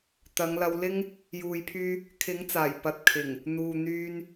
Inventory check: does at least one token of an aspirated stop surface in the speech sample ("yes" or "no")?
yes